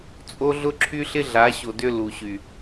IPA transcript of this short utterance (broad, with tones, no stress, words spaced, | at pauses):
t͡sʼo˦ɮʊ˦ǁʰy˦ɬɪ˦ ɮa˨˦ɕo˨ dʏ˦ lu˨ɕy˨